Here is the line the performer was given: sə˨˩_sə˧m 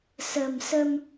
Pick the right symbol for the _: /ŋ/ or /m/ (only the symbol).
m